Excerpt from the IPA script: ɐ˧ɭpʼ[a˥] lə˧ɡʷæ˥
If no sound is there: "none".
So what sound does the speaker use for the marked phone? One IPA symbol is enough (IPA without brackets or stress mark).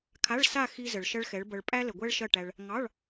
æ˥